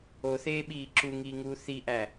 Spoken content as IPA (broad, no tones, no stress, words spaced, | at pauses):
oθeːɓiː ǁuŋiːŋuː θiʔæ